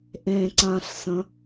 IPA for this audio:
ʔ ẽ ǀ ã ɬ s ə̃

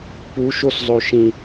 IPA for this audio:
p u ʃ o s zˤ o ʃ ĩ

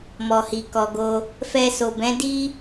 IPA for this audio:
m ɔ˨ h i˨ k ɔ˨ ɡ o˧ | f ɛ˧ s o˨ b ɛ̃˨˦ d i˦

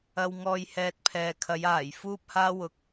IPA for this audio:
ɐ˨ w ŋ ɔː˨ j h ɛː˨ t̚ pʰ ɛː˨ kʰ ɐ˨˧ j aː˨˩ j f uː˧ p̚ h aː˧ w ʊ˨ k̚

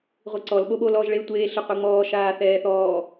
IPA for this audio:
ʁʷ i ǀ ɔ l ɓ o ɓ o l ɔː ʒ ɭ e tʷ eː ɬ ɨ qʷ i ŋ͡m ɔː ʃ aː θ ɛː θ ɔː

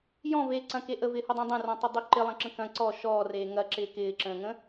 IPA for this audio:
j ɔ̃ v eː ǀ ɐ̃ k e ʔ ə v ɪː h ʊ dˤ ẽ dˤ ẽ r ɔ̃ tˤ ə dˤ y ǃ ɪ lˠ ɐ̃ ǁ ə̃ k ɐ̃ ǀ ɔ ʃ ɔː r eː ŋ ɐ ǁ ɪː k ɪː ǁ ə̃ː ŋ ə̃

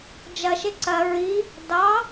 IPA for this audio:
d͡ʒ ɐ ʃ e ǀ ɐ ɹ i | d ɑ

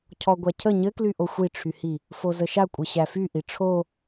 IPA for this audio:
cʰ ɔ ɡʷ æ cʰ ə ɲ ɘ k l y ʔ o xʷ i ʈ͡ʂʰ y h i | f o z ə ʃ a kʷʼ ɘ ɕ æ f y ʔ i ʈ͡ʂʰ o

